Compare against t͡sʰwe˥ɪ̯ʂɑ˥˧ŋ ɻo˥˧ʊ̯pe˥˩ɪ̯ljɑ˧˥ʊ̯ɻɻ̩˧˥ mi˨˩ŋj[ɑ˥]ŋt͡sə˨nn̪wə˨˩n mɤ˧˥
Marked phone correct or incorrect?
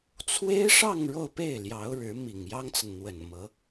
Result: correct